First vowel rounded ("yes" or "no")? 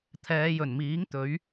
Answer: no